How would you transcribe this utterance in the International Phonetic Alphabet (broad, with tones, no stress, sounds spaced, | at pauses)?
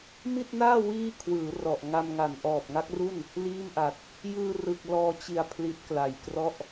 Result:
m i˥˩ t̚ n aː˥˩ w iː˥˩ kʰ w ɯː˩˦ r ɔ˨˩ ʔ ŋ a˧ m ŋ a˨˩ n ʔ ɔː˨˩ p̚ ŋ a˦˥ k̚ r u˥˩ n | l iː˥˩ m ʔ a˨˩ t̚ | j ɯː˧ r ɯ˨˩ k̚ l ɔː˧ t͡ɕ i˨˩ a̯ pʰ l i˦˥ t̚ k l a˨˩ j k r ɔ˥˩ ʔ